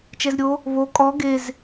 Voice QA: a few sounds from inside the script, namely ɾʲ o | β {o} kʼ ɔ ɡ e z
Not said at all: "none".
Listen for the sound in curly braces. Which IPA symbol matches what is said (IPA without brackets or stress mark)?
o